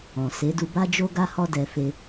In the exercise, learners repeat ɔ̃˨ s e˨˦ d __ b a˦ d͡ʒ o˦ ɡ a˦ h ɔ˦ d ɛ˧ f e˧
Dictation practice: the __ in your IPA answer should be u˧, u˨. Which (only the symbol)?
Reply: u˧